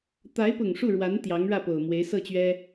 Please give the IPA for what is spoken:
t̪ a˧˥ ɪ̯ p ʊ˨˩ ŋ ʂ u˥˩ ɻ w a˧˥ n t̪ j ɑ˧˥ ŋ ɻ ä˥˩ p o˨˩ ʊ̯ m w e˧˥ ɪ̯ s ɤ˥˩ t͡ɕ ɥ ɛ˥

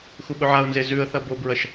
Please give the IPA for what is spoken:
x u ɓ ɵ ʕ a ʊ̯ n z e z ʉ ə̯ θ ɐ b o b ɹ ɐ ʃ

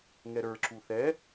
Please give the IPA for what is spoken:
ŋ ɛ ɾ ə˞ ǁ u θ ɛ

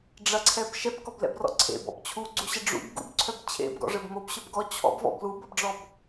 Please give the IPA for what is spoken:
ɖ͡ʐ ɐ ǀʰ ɛ b ʃ ɛ b k ɔ b l ɛ̰ b r ɔ̰ ǀʰ ḛ b ɔ̰ b t͡ɕʰ u ɡ͡ǀ u ɕ ɐ ɖ͡ʐ ṵ b ɡ ṵ b ǀʰ œ b t͡ɕʰ ḛ b ɡ ɔ̰ ʐ ɘ b m o b ɕ œ b ɡ ɔ t͡ɕʰ ɔ̰ b v ɔ̰ b l u b ɐ b ɖ͡ʐ ɔ b

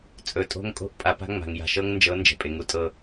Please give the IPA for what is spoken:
t͡sʼ ɵ˨ tʼ o̤˦ ŋ kʼ o̤˦ ʔ pʼ a˨ p a̤˦ ŋ͡m a̤˨ ŋ j a̤˨ ʃ ɤ˦ ŋ n d͡ʒ ɤ˨˦ n d͡ʒ ɛ̤˨ pʼ e˨ ŋ u˦ tʼ ɤ˦

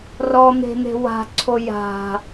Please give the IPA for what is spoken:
r ɔ n̪ e̤ n̪ e̤ w a̤ ǀʰ o j a̤

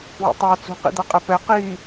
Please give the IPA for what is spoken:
w ḛ tˤ a t͡s ṳ q ḭ d̪ a qʼ ɛ p ɛ q iː

